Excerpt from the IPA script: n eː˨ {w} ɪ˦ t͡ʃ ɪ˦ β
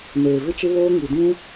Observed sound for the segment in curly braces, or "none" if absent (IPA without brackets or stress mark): v